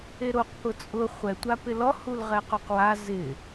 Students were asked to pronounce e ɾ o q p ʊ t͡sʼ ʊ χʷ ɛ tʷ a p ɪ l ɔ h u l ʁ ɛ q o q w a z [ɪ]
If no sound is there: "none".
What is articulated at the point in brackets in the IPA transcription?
ɪ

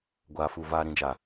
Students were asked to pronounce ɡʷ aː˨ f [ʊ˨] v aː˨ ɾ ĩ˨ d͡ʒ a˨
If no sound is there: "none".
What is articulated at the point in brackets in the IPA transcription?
u˨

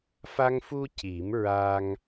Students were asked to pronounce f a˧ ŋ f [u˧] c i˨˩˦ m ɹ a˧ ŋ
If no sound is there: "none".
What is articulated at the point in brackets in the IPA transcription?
u˧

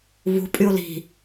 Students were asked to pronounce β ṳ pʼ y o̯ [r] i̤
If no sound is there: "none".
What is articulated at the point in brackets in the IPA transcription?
l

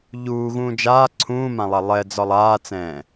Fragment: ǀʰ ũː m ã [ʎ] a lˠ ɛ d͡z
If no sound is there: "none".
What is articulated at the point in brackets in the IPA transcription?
lˠ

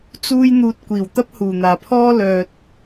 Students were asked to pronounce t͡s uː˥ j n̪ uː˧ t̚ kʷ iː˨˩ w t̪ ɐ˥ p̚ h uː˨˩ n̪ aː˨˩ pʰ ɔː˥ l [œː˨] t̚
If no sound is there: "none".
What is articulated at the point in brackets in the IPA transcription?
œː˨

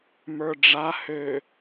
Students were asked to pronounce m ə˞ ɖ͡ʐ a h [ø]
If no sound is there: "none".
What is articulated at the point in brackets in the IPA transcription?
ø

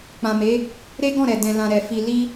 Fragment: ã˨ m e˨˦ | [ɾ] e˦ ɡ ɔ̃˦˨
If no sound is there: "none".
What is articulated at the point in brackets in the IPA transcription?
ɾ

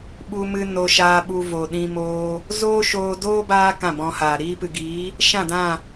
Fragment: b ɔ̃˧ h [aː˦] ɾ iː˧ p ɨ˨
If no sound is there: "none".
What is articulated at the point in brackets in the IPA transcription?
aː˨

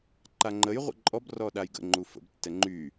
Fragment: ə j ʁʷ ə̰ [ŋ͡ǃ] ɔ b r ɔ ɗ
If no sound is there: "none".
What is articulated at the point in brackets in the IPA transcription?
ǃʼ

